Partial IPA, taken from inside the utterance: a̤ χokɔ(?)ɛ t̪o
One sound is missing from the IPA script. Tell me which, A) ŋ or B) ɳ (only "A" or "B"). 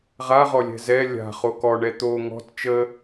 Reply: B